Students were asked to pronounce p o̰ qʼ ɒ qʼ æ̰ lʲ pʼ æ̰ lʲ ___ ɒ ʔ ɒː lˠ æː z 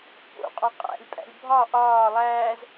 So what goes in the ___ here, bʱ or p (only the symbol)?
bʱ